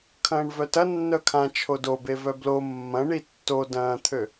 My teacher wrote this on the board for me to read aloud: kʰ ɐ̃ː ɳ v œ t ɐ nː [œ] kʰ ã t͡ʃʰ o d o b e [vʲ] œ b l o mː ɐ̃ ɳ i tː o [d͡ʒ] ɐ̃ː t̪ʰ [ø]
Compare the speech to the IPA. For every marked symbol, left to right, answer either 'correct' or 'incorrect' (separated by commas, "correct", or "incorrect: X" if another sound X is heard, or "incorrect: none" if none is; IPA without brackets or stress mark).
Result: correct, incorrect: v, incorrect: d, correct